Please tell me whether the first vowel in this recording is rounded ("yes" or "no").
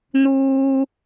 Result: yes